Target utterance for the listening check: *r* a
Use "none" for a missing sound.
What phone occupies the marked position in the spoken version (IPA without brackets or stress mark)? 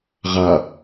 ʁ